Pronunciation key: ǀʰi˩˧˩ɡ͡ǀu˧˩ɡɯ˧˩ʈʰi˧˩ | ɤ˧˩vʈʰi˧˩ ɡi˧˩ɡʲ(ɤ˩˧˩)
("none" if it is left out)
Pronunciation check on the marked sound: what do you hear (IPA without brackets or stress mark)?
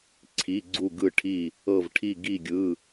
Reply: ɯ˩˧˩